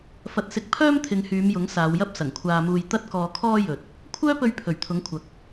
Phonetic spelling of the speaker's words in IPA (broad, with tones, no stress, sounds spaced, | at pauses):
f ɐ˧ t̚ s ɪ˧ k̚ pʰ œː˥ m t̪ʰ ɪ˨˧ ŋ h yː˨˧ m j ʊ˨˥ ŋ s aː˨˧ w j ɐ˥ p̚ s ɐ˨˩ ŋ kʷʰ aː˧ m uː˧ j t̪ ɐ˥ t̚ k ɔː˧ kʰ ɔː˥ j ɵ˨ t̚ | kʷʰ œː˥ p ɵ˧ ɥ pʰ ɵ˨˩ ɥ t̪ʰ ʊ˨˥ ŋ kʷʰ ɐ˨ k̚